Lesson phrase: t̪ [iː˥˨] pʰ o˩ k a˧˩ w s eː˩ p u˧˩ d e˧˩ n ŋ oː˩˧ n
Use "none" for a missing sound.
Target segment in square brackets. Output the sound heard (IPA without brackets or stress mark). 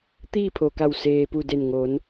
iː˥˨